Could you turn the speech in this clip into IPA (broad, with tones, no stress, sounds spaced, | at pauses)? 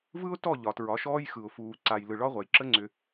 v ɯ˦ ʊ̯ t ɔ˦˨ ʎ ɒ˨ t ɹ ɒ˨˦ ʃ ɔː˦ j x ɯ˨ ʊ̯ f uː˨ ǀ a˨ j l ɯ˨ ɭ ɒ˦ ʁʷ a˨ j ǁ ə˦ ŋ͡ǀ ʏ˨